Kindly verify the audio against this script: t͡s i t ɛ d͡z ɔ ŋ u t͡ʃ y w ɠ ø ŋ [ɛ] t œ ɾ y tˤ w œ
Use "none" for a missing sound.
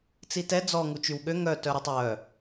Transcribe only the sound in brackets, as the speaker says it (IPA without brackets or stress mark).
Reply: œ